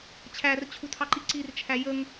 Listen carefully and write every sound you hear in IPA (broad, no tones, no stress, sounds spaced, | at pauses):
t͡ɕʰ æ r t͡ɕʰ u tʰ ɑ ǃ i ǀ i r t͡ʃʰ æ j ə ŋ